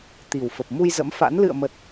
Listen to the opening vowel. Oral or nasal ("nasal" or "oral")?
oral